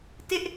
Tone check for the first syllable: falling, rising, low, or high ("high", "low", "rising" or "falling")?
high